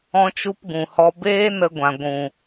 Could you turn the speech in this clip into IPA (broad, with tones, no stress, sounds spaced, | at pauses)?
ɔ̃˦ t͡ʃ u˦ p ɡ ũ˨ h ɔ˧ b eː˦ n ə˧ ɡʷ ã˨ ɡʷ ũ˨